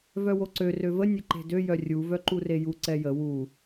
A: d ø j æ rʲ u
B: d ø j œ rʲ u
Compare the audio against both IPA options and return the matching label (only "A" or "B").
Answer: B